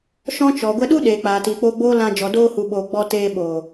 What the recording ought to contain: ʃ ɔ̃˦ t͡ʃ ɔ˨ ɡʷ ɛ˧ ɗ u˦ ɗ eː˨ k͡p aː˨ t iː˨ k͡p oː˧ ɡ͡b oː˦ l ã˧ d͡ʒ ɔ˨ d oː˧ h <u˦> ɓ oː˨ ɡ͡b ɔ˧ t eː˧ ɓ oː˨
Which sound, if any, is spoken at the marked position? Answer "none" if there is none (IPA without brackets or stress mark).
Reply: u˨